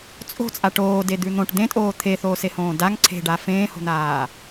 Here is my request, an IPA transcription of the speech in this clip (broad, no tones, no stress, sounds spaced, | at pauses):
t͡sʼ o̤ t͡sʼ a ʈ oː d e d̪ ʉ n̪ õ ʈ d̪ ẽ tʼ oː t̪ʰ e θ oː s e h õː d a ŋ ǀʰ e̤ ɖ a f ẽː h o̤ n̪ aː